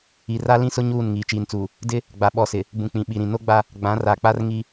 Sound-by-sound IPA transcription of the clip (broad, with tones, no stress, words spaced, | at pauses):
i˨ra˦lĩ˦sʊ˦ ɲuː˦˨n ŋiː˨t͡ʃiː˨nt͡suː˨ | dɪ˦ | ɡ͡ba˨ɓɔ˨sɪ˨ | bũ˨k͡pĩ˨ɓi˨ɾĩ˨ no˦ɡ͡ba˦ | ɡ͡bã˨˦ra˨k͡pa˦r ŋi˦